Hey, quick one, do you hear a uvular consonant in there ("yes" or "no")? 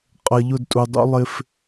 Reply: yes